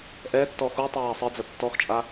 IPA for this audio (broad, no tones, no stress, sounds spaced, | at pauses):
ʔ ɛ tː ɔ x u tˤ æː sˤ ɘ d͡z ɐ tː ɔ x t͡ʃʼ a